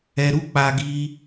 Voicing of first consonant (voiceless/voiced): voiced